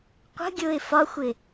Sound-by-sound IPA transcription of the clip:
qʷ ə̤ ɡʲ ʊː ɪ̯ f ɒ xʷ ɪ

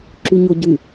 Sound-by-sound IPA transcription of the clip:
ǁ y ɲ o ɟ y

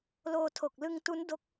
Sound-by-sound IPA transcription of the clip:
l oː˧ tʰ o˨˩ k̚ l ɯ˧ ŋ t u˦˥ n d o˦˥ k̚

